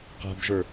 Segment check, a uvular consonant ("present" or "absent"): present